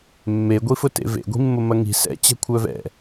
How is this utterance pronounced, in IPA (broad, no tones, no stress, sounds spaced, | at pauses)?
mː e ɡʷ i f ʊ t ḛ v ḛ ɡʷ i̤ mː ʊ m ɐ ŋ i̤ s ɛ̰ t͡ɕ ɛ̤ kʷʰ œ v ɛ̰